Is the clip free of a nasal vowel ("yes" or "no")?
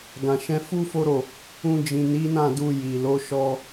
no